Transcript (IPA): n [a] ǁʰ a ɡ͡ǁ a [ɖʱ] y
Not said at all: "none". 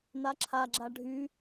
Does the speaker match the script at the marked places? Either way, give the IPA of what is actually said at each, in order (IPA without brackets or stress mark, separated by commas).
a, ɖʱ